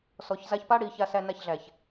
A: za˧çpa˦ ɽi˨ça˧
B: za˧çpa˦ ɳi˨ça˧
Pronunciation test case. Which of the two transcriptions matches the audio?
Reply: A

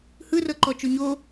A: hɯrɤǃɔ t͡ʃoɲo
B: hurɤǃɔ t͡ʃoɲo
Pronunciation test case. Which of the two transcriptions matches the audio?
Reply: A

